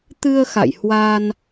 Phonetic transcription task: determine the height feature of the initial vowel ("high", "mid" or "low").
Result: high